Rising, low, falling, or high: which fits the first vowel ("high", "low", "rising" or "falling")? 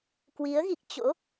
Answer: rising